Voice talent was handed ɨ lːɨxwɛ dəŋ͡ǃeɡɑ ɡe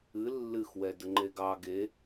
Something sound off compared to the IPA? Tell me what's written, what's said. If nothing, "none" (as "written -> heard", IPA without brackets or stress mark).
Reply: none